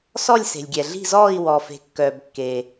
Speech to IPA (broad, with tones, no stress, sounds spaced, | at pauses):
s ɔ˥˧ lʲ s e̤˩ lʲ ɡʲ ɛ˩ ɮ i̤˥˧ z ɔː˥˧ i̯ w ɔː˩ f e̤˩ kː œː˩ b kː eː˩